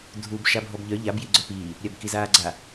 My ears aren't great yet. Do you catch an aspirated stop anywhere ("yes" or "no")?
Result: no